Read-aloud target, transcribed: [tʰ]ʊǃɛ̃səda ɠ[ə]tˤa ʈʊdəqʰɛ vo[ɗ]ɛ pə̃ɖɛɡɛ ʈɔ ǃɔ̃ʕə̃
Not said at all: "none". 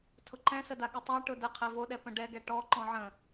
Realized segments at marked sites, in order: tʰ, ɨ, ɗ

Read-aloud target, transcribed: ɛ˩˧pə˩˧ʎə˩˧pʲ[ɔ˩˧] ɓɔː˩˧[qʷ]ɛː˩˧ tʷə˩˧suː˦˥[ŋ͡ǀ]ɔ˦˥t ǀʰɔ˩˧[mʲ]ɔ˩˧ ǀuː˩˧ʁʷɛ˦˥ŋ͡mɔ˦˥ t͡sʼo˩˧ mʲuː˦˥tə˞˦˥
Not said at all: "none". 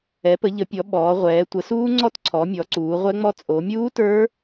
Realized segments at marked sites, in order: ɔ˩˧, ʁʷ, ŋ͡ǀ, mʲ

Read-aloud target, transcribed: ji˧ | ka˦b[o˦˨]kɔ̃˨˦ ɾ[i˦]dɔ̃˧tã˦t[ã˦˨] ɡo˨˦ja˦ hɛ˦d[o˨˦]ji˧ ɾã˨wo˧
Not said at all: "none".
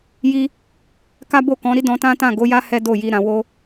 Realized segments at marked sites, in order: o˦˨, i˦, ã˦˨, o˦˨

